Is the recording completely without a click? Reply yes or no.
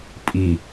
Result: yes